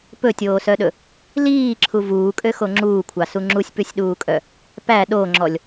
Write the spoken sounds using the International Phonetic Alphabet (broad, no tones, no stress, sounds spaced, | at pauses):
p ɵ tʲ oː s œ ɗ ɵ | l iː ǁʰ u v uː kʼ ø x o ŋ͡ǁ uː kʷʰ ɑ s u ŋ͡ǁ u sʲ p ʉ sʲ ɗ uː kʼ œ | p æ ɗ o ŋ͡ǁ ɔ lʲ